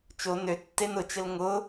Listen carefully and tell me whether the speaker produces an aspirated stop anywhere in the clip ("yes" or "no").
no